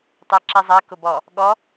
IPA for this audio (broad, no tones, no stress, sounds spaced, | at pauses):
tˤ ɛ ǁ i zˤ ɜ k ʊ b ɔ | ɠ ɔ